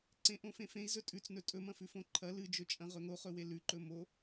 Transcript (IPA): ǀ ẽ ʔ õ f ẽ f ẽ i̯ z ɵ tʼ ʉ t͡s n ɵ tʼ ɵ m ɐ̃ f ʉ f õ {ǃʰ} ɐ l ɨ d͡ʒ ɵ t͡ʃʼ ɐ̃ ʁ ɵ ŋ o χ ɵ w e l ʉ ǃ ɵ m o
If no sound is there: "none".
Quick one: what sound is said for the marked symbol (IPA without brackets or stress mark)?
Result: ǃʰ